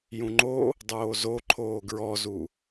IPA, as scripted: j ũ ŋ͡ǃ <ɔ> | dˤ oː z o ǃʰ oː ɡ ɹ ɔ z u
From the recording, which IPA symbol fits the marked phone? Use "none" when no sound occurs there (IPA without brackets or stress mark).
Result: o